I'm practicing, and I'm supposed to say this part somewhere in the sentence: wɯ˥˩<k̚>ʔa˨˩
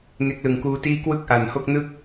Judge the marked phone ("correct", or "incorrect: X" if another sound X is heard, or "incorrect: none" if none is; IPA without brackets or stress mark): correct